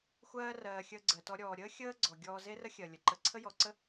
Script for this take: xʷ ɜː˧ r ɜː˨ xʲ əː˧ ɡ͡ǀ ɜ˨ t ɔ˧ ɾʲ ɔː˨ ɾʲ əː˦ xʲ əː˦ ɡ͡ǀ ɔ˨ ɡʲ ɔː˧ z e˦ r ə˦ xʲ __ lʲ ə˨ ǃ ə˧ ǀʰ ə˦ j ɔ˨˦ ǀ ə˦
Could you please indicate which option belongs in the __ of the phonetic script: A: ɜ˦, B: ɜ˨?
B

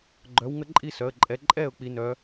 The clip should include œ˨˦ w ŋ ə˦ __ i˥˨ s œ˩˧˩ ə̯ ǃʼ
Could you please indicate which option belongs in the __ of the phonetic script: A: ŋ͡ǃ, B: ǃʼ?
B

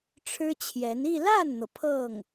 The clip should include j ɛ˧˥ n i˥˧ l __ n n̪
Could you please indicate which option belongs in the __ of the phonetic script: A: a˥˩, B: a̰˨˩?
A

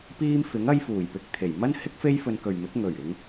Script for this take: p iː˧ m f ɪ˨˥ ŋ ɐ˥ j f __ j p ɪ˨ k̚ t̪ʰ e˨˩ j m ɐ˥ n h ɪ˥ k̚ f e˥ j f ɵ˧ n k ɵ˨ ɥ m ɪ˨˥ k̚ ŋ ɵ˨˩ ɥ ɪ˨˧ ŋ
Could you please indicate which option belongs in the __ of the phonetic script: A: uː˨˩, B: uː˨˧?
A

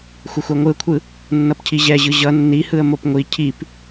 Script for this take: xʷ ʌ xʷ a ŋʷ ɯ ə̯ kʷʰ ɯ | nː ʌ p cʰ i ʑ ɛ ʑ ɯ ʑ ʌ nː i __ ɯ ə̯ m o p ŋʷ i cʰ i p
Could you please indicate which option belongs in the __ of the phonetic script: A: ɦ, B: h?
B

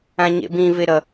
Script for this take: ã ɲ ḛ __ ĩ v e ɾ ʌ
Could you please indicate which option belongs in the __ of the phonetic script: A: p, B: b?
B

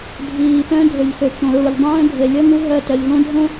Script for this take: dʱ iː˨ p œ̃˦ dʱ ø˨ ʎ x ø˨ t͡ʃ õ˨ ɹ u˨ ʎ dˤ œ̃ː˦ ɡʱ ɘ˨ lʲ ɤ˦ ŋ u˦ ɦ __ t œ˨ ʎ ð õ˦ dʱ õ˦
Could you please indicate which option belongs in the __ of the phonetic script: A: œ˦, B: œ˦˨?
B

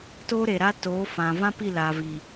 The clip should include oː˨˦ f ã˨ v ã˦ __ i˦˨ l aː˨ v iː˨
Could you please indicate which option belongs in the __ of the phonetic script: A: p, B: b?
A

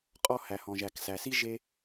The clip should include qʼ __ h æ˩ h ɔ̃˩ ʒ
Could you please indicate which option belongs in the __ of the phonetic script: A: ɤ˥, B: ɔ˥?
B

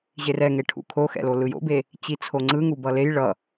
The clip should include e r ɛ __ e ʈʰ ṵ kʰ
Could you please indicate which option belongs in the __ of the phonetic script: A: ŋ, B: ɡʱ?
A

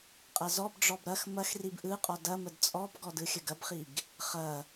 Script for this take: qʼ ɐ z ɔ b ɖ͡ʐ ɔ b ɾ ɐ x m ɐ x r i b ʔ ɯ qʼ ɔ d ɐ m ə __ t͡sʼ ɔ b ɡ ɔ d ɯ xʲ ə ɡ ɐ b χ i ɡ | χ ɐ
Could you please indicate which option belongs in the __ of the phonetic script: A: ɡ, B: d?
B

